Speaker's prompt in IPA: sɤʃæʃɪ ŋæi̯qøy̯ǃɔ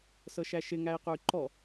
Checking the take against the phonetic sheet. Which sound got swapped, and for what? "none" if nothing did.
none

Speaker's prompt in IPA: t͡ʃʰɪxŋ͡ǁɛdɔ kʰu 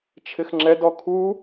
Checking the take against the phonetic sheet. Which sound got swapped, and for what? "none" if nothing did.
none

